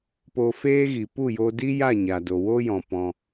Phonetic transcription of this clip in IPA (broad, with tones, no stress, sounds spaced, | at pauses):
p o˧ f eː˦ ɣ i˨ p u˦˨ j o˧ d i˦ j a˦˨ ɲ a˨ d o˨ w o˦ j ɔ̃˨ p ɔ̃˧